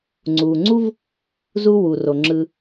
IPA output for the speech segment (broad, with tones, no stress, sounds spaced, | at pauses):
ŋ͡ǀ u˩ ŋ͡ǀ u˥ v | z u˦ w u˩ r o˩ ŋ͡ǁ ɯ˩